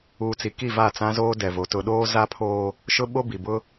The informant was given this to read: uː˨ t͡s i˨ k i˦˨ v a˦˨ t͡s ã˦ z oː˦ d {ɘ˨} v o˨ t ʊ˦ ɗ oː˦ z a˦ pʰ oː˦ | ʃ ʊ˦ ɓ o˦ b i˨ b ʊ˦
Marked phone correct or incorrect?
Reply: incorrect